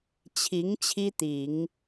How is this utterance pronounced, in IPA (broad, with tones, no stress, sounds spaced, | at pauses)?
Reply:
t͡ɕʰ i˧˥ ŋ t͡ɕʰ i˥ t̪ i˨˩˦ ŋ